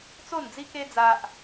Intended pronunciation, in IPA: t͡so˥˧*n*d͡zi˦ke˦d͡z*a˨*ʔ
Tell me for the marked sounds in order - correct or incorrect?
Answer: correct, incorrect: a˦

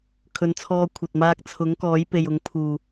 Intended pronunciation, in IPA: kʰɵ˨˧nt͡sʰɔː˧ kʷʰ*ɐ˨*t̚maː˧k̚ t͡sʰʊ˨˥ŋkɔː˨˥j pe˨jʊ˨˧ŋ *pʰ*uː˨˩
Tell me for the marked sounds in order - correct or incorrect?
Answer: correct, correct

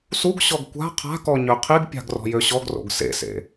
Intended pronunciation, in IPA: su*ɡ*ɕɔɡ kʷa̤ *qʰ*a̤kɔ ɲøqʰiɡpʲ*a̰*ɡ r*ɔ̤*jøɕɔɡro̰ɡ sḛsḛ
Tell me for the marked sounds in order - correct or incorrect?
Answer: correct, correct, incorrect: a̤, correct

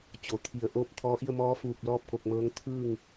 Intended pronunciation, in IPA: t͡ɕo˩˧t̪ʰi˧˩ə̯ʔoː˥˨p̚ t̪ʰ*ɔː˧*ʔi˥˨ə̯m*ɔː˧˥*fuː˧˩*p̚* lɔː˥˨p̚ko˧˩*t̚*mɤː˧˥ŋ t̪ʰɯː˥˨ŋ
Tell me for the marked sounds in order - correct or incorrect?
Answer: correct, correct, correct, incorrect: k̚

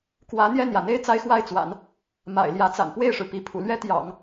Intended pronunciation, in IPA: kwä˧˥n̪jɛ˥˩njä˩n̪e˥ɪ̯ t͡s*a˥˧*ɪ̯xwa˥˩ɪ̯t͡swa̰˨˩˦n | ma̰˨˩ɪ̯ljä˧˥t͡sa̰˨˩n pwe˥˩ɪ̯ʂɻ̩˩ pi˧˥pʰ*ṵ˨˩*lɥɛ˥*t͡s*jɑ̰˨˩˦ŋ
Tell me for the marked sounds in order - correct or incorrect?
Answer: incorrect: a˥, correct, incorrect: t̪

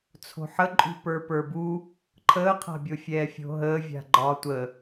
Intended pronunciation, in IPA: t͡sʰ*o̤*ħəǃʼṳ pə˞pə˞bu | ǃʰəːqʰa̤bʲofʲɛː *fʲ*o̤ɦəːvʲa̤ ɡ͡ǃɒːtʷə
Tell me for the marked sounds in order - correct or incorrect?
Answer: correct, correct

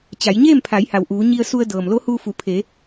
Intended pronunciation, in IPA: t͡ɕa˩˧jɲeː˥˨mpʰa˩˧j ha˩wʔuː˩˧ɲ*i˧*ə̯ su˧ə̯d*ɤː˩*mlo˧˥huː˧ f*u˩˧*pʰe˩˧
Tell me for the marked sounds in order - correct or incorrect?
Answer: correct, correct, correct

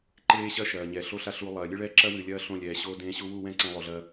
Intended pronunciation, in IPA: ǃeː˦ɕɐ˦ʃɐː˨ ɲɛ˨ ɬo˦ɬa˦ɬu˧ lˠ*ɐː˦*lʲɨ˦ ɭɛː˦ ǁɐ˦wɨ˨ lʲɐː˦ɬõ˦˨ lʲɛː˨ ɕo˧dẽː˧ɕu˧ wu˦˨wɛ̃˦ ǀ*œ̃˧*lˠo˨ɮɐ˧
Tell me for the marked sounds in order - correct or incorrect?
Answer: incorrect: ɐː˨, incorrect: ɛ̃˧

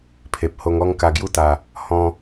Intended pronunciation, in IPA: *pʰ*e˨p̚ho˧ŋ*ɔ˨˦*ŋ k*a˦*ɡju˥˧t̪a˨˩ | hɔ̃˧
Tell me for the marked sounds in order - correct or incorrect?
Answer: correct, incorrect: ɔ˦, incorrect: a˧

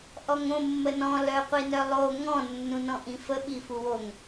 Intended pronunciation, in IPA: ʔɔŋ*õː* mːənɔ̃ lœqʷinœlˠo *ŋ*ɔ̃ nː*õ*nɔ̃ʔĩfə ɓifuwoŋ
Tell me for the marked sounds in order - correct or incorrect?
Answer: incorrect: õ, correct, incorrect: ũ

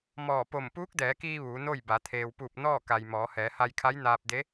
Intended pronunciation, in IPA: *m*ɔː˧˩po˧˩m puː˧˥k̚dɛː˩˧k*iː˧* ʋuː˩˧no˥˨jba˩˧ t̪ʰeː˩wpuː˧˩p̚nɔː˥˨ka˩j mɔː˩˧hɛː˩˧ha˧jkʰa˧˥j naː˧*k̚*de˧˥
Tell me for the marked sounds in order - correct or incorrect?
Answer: correct, correct, incorrect: p̚

